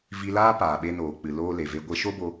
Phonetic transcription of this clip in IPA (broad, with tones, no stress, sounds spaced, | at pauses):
v i˧ l aː˦ p aː˨ ɓ e˧ n oː˨ k͡p ɨ˨ l oː˧ l e˨ v e˧ ɡʷ e˧ ʃ o˦ b o˧